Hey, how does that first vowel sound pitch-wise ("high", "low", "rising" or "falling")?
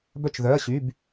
falling